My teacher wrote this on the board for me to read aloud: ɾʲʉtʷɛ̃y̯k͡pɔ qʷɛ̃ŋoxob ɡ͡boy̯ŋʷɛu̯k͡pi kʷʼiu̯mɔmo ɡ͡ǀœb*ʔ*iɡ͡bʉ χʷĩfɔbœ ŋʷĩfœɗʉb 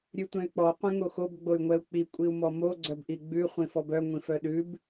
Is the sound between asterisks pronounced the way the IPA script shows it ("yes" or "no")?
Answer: yes